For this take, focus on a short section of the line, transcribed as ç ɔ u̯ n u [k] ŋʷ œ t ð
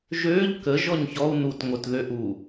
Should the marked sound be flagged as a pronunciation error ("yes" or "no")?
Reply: yes